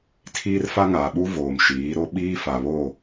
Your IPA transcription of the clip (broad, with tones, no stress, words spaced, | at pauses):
tʰiː˦rfa˦ŋaː˨ɓu˦ voː˨mʃiː˨˦ɾo˦ ɓiː˦fa˨βo˦˨